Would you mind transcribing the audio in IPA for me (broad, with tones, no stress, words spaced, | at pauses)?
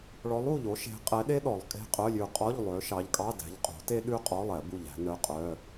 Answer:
ɭɔ˨˦lˠu˧˩ʎo˨˦ ʃe̤˨˦qʼɛ˨˦ɗe˥ ɗɔ˨˩˦lˠ kʼe̤˧˥˧qʼœ˧˥˧lʲʉ˧˩ qʼɔ˧˥˧ʎ lˠø˨˦ ʃɑ˨˦ʎkʼɑ˧˥˧ dæ̤˨˦ʎqʼo̤˨˩˦te˥ ɗʉ˥qʼɔ˧˥˧lˠɛ˨˩˦ bu˧˩ʎæ̤˨˦nœ˧˥˧qʼœ˧˥˧